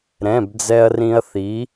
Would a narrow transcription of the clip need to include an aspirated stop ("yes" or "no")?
no